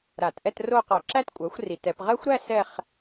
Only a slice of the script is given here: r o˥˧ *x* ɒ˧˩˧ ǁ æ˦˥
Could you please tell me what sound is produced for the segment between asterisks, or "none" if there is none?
q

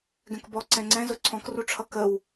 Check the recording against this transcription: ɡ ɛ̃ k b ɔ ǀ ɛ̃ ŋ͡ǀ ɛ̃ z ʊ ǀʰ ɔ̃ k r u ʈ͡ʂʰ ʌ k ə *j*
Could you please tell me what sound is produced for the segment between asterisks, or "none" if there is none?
w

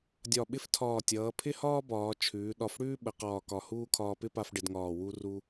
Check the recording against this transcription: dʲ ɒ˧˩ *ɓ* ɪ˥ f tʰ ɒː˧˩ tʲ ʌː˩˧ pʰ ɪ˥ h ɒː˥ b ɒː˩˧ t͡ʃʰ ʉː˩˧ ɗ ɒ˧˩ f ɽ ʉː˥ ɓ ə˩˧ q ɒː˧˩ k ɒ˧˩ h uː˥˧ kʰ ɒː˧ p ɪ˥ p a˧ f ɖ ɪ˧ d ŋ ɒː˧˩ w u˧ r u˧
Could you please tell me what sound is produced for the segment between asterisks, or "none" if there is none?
ɓ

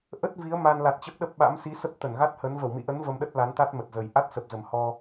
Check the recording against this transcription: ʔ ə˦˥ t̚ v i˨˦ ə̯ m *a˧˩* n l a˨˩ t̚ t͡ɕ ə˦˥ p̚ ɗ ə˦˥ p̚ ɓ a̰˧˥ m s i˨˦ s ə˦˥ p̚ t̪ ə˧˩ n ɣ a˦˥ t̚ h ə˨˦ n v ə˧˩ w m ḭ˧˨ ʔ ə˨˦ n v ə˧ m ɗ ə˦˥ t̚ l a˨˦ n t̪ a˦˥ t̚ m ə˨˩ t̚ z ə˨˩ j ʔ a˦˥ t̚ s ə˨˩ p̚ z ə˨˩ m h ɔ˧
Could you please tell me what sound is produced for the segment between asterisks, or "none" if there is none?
a˧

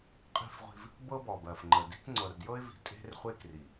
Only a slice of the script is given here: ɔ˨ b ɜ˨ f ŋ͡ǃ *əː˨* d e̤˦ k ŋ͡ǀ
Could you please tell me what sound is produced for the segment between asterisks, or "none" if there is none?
ə˨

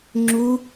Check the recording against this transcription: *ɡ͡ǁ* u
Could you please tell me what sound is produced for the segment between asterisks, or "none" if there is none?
ŋ͡ǁ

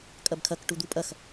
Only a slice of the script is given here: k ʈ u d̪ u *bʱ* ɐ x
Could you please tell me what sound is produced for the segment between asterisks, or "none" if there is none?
pʼ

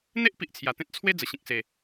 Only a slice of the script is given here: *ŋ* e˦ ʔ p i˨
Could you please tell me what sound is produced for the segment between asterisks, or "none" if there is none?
n̪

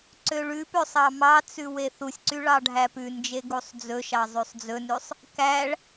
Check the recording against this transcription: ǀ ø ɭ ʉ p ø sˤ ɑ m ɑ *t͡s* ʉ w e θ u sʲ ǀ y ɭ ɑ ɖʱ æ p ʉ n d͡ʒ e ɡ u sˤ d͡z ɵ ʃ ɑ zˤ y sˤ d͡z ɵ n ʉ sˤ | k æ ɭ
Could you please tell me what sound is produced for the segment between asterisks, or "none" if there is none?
t͡s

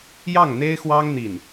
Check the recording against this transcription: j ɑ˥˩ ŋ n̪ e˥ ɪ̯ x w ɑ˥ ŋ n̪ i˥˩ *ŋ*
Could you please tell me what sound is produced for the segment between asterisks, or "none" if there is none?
n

